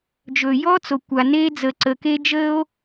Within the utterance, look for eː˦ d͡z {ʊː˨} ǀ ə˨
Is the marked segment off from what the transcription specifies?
yes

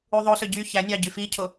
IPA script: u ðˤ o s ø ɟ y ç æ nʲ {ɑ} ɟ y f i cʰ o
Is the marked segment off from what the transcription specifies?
no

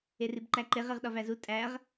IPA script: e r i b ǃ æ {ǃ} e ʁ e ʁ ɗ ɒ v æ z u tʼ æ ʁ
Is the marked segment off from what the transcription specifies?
no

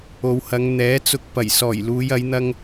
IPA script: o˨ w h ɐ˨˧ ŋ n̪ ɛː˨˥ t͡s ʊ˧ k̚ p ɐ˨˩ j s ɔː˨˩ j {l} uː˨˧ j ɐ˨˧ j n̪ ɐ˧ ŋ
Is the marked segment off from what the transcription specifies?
no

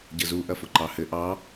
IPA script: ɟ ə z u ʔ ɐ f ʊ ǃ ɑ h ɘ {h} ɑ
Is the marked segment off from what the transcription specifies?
yes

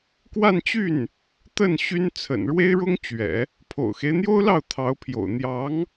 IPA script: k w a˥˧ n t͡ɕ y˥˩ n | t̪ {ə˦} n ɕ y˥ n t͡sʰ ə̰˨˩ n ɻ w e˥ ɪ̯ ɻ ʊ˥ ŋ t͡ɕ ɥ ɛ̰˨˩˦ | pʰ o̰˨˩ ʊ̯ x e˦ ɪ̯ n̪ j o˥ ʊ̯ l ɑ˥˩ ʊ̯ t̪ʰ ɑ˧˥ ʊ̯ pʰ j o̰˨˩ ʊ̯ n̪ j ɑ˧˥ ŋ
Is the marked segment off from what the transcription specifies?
yes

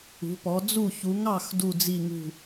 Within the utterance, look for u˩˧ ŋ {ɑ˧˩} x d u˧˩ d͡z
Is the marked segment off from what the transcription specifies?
no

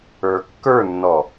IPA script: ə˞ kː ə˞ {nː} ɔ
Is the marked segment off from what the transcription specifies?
no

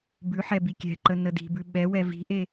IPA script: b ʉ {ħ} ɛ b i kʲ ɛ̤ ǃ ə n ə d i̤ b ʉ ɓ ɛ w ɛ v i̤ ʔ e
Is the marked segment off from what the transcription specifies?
no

